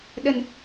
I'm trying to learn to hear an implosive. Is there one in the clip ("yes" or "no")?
yes